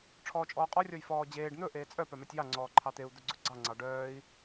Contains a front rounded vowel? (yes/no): yes